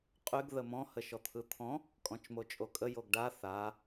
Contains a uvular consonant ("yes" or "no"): yes